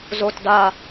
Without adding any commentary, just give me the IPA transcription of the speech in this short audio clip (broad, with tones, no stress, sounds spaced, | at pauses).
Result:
z o˦ t d a˦